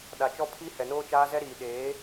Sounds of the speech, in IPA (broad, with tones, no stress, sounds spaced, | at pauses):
ɗ a˨ t͡ʃ ɔ˦ pʰ i˦ h ɛ˨ n oː˦ t͡ʃ aː˦ z ɛ˦ ɾ iː˨ ɗ eː˨˦